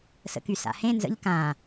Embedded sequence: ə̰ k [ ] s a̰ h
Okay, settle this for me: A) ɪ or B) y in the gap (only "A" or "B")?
B